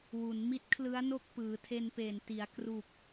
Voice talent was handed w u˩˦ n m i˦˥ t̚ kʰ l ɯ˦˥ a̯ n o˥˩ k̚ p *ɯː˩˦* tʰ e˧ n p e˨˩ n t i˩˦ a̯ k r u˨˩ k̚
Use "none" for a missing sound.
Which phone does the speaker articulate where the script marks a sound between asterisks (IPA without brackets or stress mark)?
ɯː˩˦